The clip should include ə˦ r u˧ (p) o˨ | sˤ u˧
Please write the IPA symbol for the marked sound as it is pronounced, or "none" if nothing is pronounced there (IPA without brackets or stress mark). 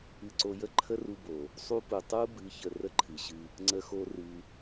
b